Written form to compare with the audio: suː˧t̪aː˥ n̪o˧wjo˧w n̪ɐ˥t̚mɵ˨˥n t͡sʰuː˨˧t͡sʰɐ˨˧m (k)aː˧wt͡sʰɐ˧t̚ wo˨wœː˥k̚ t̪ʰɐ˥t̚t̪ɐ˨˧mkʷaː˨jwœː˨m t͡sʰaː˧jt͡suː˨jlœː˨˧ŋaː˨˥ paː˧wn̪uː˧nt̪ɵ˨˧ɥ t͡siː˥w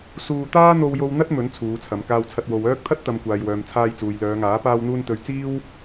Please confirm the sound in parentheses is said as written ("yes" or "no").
yes